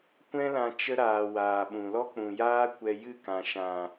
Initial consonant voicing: voiceless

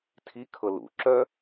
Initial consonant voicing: voiceless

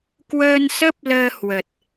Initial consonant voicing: voiceless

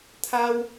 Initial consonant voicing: voiceless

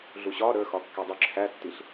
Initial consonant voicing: voiced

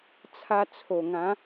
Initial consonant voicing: voiceless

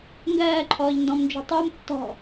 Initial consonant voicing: voiced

